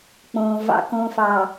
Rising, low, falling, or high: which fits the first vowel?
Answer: low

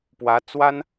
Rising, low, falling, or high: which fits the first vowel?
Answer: rising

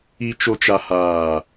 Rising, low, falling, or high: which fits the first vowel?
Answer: low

